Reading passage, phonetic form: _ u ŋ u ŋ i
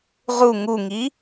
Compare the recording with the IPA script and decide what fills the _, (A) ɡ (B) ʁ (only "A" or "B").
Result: B